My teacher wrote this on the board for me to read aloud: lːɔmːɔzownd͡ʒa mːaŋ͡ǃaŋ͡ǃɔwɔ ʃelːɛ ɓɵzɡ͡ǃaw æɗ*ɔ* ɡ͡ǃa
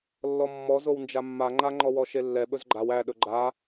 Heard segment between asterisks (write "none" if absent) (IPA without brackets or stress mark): ɵ